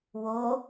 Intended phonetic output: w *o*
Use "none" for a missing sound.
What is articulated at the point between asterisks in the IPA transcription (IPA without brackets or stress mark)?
o